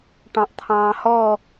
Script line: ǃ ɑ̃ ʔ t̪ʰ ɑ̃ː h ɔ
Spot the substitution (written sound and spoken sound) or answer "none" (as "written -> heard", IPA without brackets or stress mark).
ǃ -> ʈ